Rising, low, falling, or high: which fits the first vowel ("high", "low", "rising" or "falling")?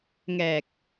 low